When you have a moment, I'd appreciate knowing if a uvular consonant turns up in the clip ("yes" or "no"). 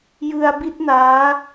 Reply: no